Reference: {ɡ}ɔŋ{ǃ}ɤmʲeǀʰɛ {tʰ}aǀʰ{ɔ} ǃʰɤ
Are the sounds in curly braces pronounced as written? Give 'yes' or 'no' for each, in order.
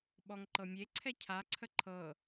no, yes, no, no

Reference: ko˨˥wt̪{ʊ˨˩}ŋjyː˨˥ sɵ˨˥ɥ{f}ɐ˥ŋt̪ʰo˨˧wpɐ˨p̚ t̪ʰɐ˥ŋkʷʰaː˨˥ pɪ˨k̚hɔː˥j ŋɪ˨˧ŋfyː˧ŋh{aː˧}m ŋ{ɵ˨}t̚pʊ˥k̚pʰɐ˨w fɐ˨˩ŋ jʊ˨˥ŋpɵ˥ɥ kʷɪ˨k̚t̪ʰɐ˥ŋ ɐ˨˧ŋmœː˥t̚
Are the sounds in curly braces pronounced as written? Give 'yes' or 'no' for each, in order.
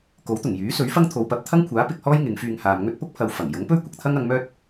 yes, yes, no, no

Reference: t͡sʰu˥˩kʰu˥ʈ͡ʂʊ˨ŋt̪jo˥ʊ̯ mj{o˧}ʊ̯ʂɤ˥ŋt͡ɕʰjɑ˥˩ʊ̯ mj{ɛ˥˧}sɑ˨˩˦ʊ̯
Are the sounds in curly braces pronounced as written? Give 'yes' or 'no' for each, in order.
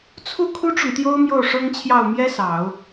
no, no

